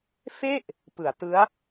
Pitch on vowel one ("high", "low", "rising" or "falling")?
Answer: falling